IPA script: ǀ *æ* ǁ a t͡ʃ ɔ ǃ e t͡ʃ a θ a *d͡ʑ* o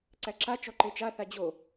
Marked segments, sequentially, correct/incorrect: correct, correct

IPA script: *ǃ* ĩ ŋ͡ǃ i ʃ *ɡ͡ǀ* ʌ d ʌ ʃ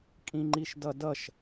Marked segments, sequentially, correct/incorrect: incorrect: kʼ, incorrect: d

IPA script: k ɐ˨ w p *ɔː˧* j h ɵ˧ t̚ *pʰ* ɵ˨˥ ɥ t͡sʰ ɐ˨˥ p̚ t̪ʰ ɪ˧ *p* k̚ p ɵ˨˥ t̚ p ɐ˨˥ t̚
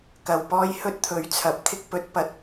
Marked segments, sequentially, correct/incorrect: correct, incorrect: t̪ʰ, incorrect: none

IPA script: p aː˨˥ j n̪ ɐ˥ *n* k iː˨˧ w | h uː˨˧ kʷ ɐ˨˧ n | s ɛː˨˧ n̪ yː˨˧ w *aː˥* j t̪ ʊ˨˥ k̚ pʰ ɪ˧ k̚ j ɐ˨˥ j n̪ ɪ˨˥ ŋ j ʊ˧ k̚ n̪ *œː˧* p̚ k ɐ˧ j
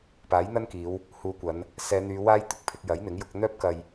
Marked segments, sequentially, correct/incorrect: correct, correct, incorrect: œː˥

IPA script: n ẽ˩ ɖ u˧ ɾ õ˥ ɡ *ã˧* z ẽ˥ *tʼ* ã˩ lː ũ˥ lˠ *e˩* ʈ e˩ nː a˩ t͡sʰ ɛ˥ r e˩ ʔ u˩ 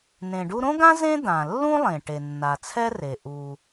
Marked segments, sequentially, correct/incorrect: incorrect: ã˥, incorrect: d̪, incorrect: ẽ˩

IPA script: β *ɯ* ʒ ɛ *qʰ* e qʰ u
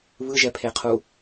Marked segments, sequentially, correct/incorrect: correct, incorrect: pʰ

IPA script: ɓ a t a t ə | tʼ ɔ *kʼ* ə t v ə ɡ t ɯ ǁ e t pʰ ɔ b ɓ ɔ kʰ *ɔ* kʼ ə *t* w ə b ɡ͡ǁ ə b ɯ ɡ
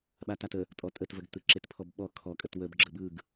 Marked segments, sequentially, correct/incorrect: incorrect: tʼ, correct, correct

